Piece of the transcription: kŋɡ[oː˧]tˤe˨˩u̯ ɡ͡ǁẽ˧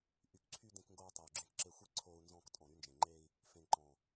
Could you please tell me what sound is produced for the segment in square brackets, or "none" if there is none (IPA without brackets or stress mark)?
oː˧